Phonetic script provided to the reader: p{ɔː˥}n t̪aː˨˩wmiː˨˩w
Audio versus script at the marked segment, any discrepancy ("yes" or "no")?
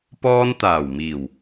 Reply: no